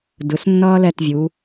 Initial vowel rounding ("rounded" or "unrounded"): unrounded